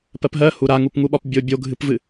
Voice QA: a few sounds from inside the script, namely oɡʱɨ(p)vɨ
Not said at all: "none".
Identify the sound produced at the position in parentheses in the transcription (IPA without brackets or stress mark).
p